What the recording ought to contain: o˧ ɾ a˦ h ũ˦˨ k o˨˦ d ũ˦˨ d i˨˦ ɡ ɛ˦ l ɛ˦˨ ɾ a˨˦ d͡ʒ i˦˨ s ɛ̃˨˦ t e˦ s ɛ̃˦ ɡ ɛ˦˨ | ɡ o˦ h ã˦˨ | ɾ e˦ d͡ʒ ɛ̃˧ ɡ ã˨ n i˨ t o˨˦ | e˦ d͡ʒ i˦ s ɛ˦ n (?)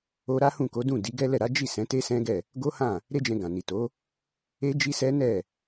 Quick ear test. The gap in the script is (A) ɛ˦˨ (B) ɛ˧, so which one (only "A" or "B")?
A